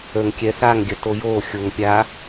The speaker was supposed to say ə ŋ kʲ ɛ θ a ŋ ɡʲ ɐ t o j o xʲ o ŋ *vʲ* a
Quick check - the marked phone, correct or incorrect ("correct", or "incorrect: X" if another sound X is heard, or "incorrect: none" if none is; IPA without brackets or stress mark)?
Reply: incorrect: pʲ